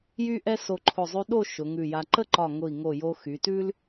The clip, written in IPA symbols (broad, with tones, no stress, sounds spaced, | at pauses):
j y˥ ʔ ɛ˥ s o˧ ǃʰ ʊ˧˩ zˤ ʉ˧ ɗ o˥˧ ʃ ʊ˩˧ ŋ ʉ˧˩ j a˧ ǃ ə˥˧ ǃ ɒ˧˩ ŋ ʊ˧˩ i̯ ŋ o˧˩ j o˧ x y˩˧ t ʉ˥ l